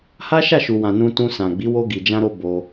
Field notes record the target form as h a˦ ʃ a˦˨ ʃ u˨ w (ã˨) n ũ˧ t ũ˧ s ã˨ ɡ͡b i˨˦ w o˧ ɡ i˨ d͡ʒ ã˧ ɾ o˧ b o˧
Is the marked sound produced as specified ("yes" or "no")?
yes